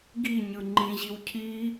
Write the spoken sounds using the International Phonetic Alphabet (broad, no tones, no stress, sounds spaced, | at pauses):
ɡ i ɲ ɯ ŋ͡ǃ ĩ ʑ i w cʰ i